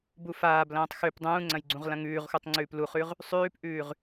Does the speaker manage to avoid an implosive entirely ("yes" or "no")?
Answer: yes